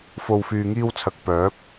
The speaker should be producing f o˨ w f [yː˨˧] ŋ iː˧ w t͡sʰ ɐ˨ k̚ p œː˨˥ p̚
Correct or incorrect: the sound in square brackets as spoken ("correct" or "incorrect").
incorrect